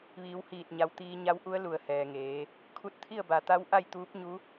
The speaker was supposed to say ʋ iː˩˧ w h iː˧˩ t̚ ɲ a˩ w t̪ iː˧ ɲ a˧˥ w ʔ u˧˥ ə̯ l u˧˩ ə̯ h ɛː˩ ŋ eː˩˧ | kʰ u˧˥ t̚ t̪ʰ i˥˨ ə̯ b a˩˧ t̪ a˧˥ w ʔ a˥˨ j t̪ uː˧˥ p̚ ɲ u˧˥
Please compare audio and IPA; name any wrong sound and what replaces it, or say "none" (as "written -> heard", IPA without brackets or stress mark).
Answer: none